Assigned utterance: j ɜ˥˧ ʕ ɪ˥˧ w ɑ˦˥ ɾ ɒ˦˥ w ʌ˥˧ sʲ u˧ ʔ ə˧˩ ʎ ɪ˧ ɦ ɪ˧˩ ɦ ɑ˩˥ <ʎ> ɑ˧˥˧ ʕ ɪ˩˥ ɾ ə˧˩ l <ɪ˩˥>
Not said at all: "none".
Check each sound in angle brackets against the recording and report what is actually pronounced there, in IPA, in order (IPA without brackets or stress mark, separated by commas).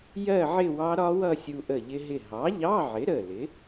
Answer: ʎ, ɪ˩˥